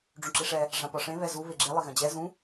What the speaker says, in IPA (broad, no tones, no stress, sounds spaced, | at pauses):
ɖ͡ʐ ũ ǁ i ʂ ɛ | ʐ ã p ɒ ʂ ẽ β ɛ z u β e ɡ͡ǁ e lˠ ɪ ɣ ɐ̃ d͡ʑ ɛ z ũ